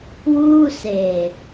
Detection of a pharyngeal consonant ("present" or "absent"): absent